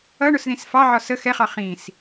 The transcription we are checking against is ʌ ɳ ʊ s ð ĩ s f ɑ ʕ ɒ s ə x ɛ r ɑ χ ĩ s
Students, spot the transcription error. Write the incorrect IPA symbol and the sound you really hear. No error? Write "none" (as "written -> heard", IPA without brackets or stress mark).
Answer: r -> χ